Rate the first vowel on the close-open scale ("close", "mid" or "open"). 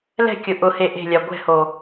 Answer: mid